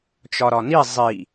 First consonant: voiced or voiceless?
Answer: voiceless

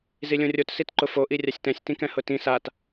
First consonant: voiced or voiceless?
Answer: voiced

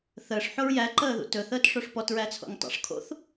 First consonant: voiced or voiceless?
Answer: voiceless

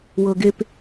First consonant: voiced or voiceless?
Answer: voiced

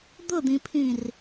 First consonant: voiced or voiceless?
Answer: voiced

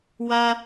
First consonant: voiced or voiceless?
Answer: voiced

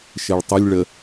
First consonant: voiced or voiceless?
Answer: voiceless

